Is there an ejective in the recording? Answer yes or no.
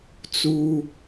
no